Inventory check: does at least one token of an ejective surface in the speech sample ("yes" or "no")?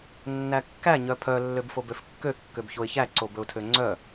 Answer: no